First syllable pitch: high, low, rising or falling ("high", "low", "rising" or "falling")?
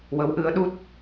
rising